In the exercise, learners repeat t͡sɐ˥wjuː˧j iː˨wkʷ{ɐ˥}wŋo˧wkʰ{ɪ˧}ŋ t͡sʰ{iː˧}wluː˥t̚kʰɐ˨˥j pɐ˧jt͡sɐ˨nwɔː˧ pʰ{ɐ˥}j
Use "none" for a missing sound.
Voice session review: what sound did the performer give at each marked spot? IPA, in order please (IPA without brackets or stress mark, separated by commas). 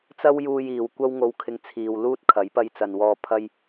ɐ˥, ɪ˧, iː˨, ɐ˥